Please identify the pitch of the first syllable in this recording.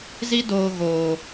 high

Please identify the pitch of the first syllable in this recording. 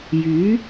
rising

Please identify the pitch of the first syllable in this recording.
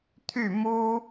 falling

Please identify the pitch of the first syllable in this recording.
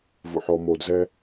low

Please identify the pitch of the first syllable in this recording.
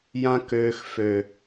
high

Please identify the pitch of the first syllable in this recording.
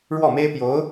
falling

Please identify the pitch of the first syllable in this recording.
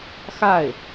falling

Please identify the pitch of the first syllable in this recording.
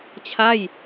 falling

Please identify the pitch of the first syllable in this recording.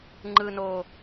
low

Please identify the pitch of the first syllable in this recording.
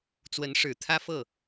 rising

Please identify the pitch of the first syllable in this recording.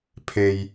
low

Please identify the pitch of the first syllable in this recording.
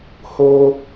high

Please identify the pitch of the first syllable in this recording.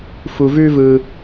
low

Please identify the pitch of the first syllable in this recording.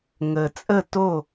low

